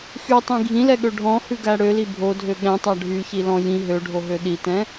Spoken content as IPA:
x y tˤ ĩ ɡʱ ĩ l ɛ ɠ ø ɖʱ ɔ̃ h ʉ ɡ æ ɽ ø l i bʱ o dʱ ø ɠ ɛ̃ tˤ æ ɖʱ y ç i l ɔ̃ j ĩ ɦ ø ɖʱ o ɦ ø ɗ i t ɛ̃

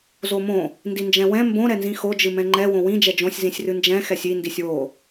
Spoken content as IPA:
z o m õ | n d i n d͡ʒ ɛ̃ w ɛ̃ m b õ ɾ ɛ n z ĩ x o d͡ʒ ɨ m ɛ̃ ŋ͡ǃ ɛ w õ w ĩ d͡ʒ ɛ d͡ʒ õ sʲ z ĩ sʲ r ɨ n d͡ʒ ɛ̃ x ɛ sʲ i n d i sʲ w o

